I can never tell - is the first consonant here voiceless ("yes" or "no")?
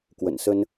yes